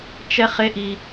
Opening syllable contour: high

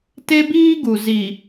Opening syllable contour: high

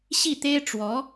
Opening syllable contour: falling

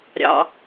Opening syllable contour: low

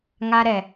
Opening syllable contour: high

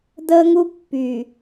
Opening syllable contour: high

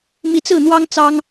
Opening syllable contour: rising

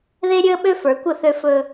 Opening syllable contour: high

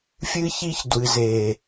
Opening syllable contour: high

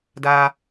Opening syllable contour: high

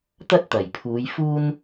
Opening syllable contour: high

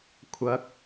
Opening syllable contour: rising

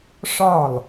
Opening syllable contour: falling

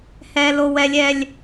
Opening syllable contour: high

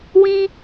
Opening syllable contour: high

